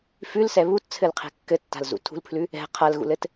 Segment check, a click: absent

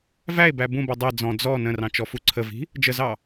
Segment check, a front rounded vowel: absent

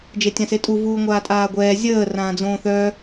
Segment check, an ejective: present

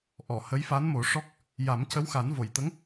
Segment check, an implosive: absent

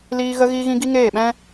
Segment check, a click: absent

